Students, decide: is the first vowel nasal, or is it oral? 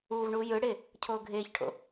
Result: oral